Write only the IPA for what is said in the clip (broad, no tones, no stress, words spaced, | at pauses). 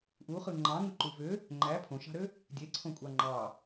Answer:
ʔuχɯ ŋ͡ǃɑ̃ŋɯǃu vø | ŋ͡ǃæ pʰõʃɑ̤ɾø | dʲeǀʰõkʷʼɑ ŋ͡ǃɑ